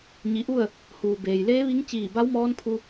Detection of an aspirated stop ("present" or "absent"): present